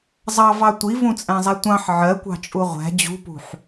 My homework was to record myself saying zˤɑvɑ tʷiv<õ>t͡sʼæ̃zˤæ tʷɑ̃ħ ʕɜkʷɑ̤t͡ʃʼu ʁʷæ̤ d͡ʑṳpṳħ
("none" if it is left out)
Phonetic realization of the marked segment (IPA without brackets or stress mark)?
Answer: ũ